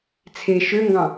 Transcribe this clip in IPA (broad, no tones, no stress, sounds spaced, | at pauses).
t͡sʰ e ʃ ø ŋ ɡ ɑ̃